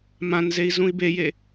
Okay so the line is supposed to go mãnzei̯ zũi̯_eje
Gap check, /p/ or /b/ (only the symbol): b